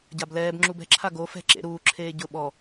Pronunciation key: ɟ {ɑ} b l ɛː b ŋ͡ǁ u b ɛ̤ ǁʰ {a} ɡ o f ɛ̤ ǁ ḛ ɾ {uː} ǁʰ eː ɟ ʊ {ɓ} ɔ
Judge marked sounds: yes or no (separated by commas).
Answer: no, yes, yes, yes